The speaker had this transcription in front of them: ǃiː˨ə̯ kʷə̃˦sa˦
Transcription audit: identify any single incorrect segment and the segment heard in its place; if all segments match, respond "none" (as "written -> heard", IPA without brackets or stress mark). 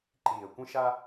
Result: s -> ʃ